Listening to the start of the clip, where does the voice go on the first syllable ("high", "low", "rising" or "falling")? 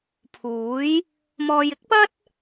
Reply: rising